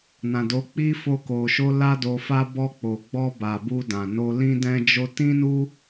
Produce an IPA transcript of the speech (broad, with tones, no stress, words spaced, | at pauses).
nã˨do˨˦k͡pi˦ fo˦ko˧ʃo˦ la˦do˧fa˦ bɔ˧k͡po˨ɡ͡bɔ˧ba˨ bu˧dã˨no˧ lĩ˦dɛ̃˦d͡ʒo˦ tĩ˦nu˦